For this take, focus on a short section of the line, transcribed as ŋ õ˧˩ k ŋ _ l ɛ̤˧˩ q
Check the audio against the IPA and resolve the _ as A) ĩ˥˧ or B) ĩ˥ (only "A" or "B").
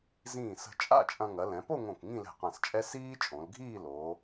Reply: A